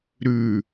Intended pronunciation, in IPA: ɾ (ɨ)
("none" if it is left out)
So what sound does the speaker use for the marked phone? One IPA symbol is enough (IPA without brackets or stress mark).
ʉ